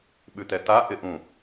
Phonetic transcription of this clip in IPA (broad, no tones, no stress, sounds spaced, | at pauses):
ɓ ʉ t̪ ɛ t̪ a ʔ ɪ ʔ ũ